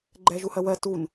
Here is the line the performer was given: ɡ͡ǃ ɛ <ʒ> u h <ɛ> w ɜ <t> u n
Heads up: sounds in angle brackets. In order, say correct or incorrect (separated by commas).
correct, incorrect, correct